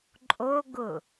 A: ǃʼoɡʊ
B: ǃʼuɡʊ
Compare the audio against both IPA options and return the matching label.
A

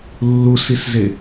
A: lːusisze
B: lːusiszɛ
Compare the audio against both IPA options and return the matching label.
A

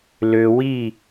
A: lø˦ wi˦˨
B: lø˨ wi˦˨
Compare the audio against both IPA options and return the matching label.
B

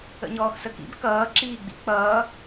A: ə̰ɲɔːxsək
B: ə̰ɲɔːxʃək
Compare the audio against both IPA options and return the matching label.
A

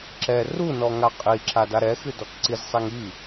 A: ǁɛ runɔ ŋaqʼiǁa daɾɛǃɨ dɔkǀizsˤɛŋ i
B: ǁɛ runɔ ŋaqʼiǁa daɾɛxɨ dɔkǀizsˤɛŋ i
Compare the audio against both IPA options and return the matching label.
B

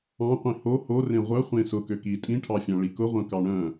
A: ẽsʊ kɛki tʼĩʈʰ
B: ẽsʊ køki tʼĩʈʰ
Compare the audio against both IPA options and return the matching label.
B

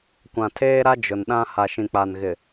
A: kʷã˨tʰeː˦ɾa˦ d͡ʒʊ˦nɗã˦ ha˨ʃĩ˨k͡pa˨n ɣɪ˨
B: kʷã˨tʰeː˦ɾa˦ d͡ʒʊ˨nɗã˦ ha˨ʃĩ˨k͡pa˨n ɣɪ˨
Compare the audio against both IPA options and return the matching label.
B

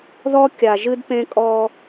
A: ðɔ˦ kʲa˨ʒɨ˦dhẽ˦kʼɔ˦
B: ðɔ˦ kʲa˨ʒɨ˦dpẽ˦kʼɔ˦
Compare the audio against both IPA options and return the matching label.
B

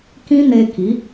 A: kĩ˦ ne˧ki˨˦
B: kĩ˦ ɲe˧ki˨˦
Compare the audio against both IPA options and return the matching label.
A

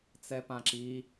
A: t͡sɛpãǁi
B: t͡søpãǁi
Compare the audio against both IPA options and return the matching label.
A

